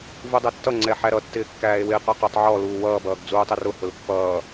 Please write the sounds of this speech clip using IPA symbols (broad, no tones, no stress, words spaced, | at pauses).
vudˤɛtːʌ ŋ͡ǀɛħæɾʌ tːɪːkːæːe̯wɪːq ə˞qʊtˤ ʕɔ luːwʌː bʌːɡd͡zuːtˤɪrʊ hʊlpːʌː